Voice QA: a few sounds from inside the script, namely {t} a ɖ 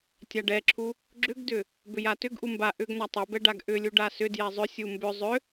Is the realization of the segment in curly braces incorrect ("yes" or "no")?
yes